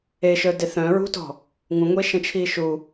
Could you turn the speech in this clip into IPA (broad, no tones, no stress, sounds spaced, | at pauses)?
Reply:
e ʃ œ d e θ œ̃ ɹ ṳ t ɔ̤ | ŋ ũ ŋʷ e ʃ ə̃ t͡ʃʰ iː ʃ u